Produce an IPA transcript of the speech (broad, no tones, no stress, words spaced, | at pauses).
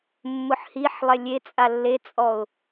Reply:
mːʊħhiħlˠɛ lʲet͡sʼa lːet͡sʼɔʊ̯